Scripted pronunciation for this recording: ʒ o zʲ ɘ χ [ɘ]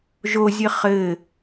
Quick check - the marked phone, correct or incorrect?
correct